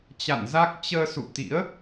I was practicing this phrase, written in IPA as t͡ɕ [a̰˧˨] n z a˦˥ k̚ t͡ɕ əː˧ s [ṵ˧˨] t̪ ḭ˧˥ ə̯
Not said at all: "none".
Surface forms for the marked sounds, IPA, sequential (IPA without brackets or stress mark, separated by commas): a̰˧˨, ṵ˧˨